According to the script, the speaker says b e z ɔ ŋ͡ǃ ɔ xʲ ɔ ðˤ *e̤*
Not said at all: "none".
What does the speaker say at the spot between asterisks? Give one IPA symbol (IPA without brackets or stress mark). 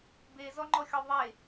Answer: e